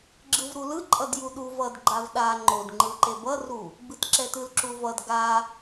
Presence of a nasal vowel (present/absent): absent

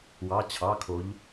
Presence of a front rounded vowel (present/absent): absent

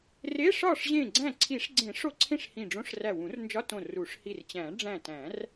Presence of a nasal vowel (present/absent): present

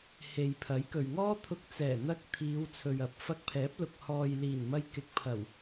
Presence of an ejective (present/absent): absent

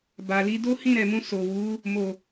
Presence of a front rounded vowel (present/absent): absent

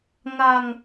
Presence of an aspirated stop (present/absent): absent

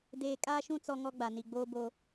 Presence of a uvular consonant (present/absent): absent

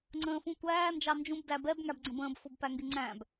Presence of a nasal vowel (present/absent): present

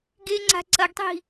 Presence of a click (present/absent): present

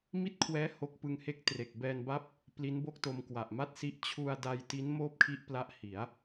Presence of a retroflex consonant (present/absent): absent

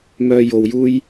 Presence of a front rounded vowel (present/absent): present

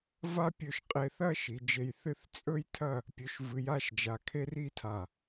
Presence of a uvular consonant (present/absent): present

